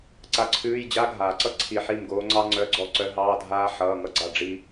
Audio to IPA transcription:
ǀa˧˩ǀʰʉː˧˥˧j d͡ʑa˧˥ɡʱaː˩ǀʌ˥ ǀʰi˧˩ħi˥˩mɡoː˧˥ ŋ͡ǀɑ˥ŋ͡ǀœ˧˥˧ɡ͡ǀɔ˥˩ ǀœ˧˥ɦɑː˧˥˧dʱaː˥ ħʌː˧˥˧ŋʌ˥ɡ͡ǀa˥˩ ɖ͡ʐi˥

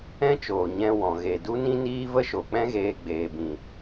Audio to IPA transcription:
ɛ̃˦t͡ʃoː˨ ɲɛ̃˧wɔ̃˨ ɣe˨ du˦nĩ˦niː˦ və˦ʃo˨k͡pɛ̃˦ɣeː˧ ɡ͡beː˨bĩ˨

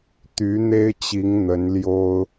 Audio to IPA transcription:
t̪y˧˥n̪e˥ɪ̯t͡ɕi˧˥ŋ n̪ə˧˥nljo˥ʊ̯

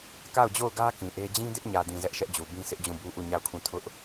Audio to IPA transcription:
ka˦˨ʊ̯d͡ʑo˦˨ʊ̯ɡä˦ kĩ˨ʔe˦ d͡ʑĩ˦dɪ˦ʔɲä˨dĩ˨ zɛ˦ʔʃɛ˦ʔd͡ʑu˨ bĩ˦sɪ˦ʔd͡ʑũ˦˨bu˦ ʔu˦˨ɲa˦˨ʊ̯kʰũ˦˨ tʰʊ˦ʔ

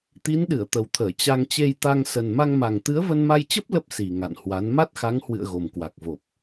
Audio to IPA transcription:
t̪i˨˦nɗɨ˧˩ə̯ t̪ə˨˩wt̪ʰəː˧˩ t͡ɕa˧ŋ t͡ɕe˧jt̪a˧ŋsə˨˩n ma˧ŋma˨˩ŋ t̪ɨ˨˦ə̯və˧nma˧jt͡ɕə˦˥p̚ lə˦˥p̚ si˨˩ ŋa̰˧˨nhwa˨˦n ma˦˥t̚xa˨˦ŋhwɨ̰˧˨ə̯ ɣo˨˩mkwa˨˩k̚ vo˨˩p̚

